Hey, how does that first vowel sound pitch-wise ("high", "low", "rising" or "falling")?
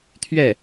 falling